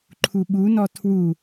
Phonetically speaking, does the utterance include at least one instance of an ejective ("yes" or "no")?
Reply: no